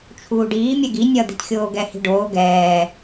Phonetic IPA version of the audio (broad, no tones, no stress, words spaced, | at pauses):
t͡ʃʰuːɖiː mʲɛɡi nʲʌ d̪i̤txʲoːɡɛ hi̤ɖoː ɡɛː